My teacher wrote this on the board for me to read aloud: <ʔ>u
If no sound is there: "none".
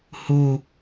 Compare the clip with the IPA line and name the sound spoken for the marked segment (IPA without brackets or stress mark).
h